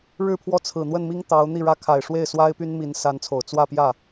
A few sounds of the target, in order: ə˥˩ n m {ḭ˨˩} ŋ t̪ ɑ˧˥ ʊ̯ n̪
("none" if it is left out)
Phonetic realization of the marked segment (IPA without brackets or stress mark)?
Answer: i˥